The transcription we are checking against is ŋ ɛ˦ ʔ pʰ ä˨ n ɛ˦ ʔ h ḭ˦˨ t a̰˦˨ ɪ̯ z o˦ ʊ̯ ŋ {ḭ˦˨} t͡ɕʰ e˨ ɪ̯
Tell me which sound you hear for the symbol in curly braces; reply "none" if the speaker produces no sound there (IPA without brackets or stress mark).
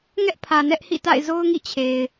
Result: ḭ˦˨